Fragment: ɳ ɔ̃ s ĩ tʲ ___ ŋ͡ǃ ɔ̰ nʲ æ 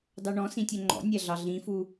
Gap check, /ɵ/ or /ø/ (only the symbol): ø